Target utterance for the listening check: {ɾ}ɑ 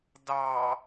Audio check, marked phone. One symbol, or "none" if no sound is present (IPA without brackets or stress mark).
d